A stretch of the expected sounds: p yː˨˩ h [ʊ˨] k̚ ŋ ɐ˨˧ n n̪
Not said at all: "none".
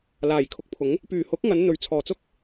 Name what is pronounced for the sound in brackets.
ʊ˨˥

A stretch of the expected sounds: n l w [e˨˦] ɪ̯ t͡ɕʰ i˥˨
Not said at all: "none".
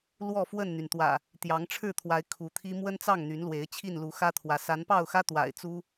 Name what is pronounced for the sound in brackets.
e˨˦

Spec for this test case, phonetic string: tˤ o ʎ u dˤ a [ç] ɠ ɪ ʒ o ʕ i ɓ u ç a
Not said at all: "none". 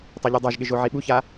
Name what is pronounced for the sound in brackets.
ʒ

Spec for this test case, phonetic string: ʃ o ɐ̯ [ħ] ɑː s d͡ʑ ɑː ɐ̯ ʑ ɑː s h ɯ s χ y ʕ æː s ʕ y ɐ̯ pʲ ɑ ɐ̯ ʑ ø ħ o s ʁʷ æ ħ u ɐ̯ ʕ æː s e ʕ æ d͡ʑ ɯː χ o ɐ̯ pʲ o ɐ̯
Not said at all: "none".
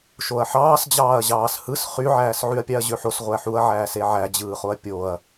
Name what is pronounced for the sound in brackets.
ħ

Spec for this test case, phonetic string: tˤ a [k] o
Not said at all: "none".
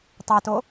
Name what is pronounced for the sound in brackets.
t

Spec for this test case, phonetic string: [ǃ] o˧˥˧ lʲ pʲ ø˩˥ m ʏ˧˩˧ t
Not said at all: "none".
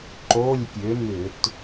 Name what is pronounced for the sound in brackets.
ǃ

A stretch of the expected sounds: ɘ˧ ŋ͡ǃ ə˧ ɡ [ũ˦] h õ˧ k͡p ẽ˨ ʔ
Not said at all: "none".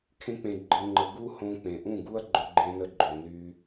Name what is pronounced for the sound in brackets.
u˦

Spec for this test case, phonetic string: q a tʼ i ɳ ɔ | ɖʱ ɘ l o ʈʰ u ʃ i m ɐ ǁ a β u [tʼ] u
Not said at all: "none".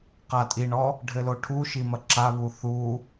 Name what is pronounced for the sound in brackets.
θ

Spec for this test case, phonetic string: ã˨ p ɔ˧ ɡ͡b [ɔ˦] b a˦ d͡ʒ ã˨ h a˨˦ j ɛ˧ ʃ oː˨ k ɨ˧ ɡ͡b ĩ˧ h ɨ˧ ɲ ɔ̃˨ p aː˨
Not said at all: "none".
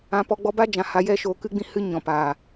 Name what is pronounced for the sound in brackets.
ɔ˧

